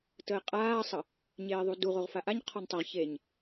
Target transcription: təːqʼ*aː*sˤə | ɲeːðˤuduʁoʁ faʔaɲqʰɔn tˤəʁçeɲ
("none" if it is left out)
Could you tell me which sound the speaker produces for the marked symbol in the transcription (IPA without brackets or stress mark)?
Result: aː